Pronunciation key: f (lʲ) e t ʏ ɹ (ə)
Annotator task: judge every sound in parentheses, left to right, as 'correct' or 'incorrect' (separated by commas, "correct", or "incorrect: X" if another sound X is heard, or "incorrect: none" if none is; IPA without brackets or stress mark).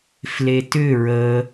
incorrect: l, correct